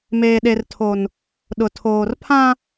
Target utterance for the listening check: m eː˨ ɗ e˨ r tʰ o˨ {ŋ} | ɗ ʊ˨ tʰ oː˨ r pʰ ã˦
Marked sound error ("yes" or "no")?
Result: yes